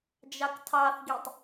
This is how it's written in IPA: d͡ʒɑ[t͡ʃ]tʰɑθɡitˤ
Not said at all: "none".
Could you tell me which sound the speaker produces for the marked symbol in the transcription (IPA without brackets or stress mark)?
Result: k